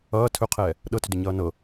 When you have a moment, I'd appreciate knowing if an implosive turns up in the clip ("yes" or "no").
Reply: yes